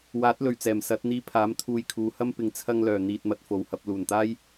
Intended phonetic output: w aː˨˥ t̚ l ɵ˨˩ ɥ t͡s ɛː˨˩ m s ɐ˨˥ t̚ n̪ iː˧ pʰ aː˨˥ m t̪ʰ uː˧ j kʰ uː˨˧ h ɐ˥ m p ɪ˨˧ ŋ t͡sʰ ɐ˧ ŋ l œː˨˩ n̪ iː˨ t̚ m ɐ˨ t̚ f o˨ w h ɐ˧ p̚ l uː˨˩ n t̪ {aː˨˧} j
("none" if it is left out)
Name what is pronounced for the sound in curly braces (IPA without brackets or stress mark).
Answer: aː˥